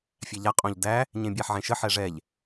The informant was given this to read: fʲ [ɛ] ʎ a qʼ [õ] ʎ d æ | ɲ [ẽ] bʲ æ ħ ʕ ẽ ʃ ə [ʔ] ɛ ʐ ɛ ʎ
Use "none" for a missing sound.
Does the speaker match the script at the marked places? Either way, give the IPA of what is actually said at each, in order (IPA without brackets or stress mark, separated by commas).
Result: æ, õ, ẽ, ħ